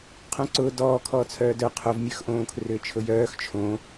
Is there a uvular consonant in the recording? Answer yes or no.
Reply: yes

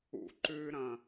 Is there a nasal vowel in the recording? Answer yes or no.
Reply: yes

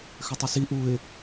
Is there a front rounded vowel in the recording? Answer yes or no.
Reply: yes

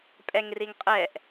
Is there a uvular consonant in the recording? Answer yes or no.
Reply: yes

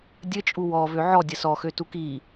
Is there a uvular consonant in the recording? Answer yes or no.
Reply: no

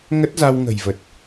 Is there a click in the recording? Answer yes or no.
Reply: no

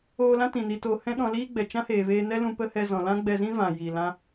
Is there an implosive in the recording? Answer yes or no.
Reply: yes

